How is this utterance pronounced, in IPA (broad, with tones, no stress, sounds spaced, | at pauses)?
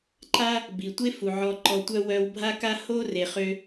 ǃ a˥ | b i˩ tʷ e˥ f u˩ ʕ ɔ˧ ǃ ɔ˧ tʷ œ˥ w œ˧ w bʱ a˥ k a˥ h o˥ r e˧ χ ø˥